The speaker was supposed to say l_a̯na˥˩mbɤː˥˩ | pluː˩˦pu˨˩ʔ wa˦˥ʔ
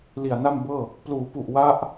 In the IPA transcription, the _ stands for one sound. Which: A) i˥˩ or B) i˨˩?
B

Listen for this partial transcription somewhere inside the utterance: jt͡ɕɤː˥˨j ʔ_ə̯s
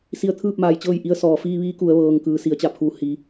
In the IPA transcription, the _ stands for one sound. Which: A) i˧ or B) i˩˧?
A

